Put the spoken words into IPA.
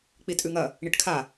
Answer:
k͡p i tʼ ʉ ŋ ɐ | ɳ i ʈ kʰ a

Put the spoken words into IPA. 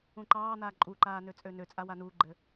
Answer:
ũ ǃ ɑː n̪ aː ǃʼ u ǃ aː n ø t͡sʼ ø n ø t͡sʼ a w a n u ɡ͡ǃ ɘ

